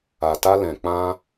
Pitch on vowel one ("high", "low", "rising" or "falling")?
low